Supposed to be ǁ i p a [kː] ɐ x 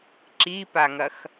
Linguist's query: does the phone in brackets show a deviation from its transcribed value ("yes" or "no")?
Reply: yes